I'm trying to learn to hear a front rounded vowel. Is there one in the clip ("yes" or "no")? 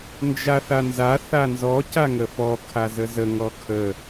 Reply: no